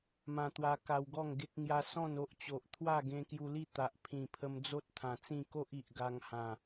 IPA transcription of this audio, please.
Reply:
m ã˧ t̪ w a˧ k a˧ w ɡ ɔ˥˧ ŋ ɡ e˦ k̚ ŋ j a˦ s ɔ̃˥˧ n o˦ ʔ t͡ɕ o˨ ʔ t̪ʰ w a˥˧ ɡ ẽ˧ k j u˧ l i˥˧ t̪ a˨ ʔ pʰ ĩ˨˩ pʰ ə˧ m d͡z o˦ t̚ t̪ʰ ã˨˩ t͡s ĩ˥˧ k o˦ ʔ i˨ ʔ ɡ a˧ ŋ h ã˨˩

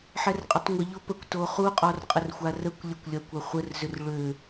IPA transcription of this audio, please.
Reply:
ħ ɛ r qʼ ə tˤ ŋʷ ə ʎ o p ə kʷ t o χ u qʼ ɔ r qʼ ə r xʷ a r ə kʷ lʲ ə kʷ lʲ ɐ kʷ ɐ χʷ ə r z ʏ r ɭ ø

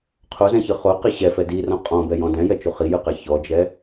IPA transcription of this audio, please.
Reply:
qʰ o z ɛ̃ ç ɯ χ o q i ɕ ɛ f ɛ d i r ɔ̃ qʼ ɔ̃ b ɛ j ɔ̃ d ɛ̃ j ɛ t͡ʃ u χ i j ɯ q ɛ ç ɔ d͡ʒ ɛ

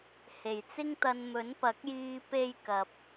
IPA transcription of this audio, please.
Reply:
h e˨˩ j t͡s ɪ˥ ŋ t̪ ɐ˧ n m ɵ˨˥ n p ɐ˨˥ k̚ j iː˧ p e˥ j k ɐ˨ p̚

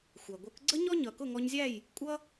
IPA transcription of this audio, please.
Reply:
xʷ æ˩ ɡʷ ə˞˩˥ k ɡ͡ǀ ə˥ ɲ ɔ˥ ɲ ʌ˩ k ʊ˥˩ ŋ ɔ˧ ɲ zʲ æ˥˩ j | kʷʼ ʌ˥

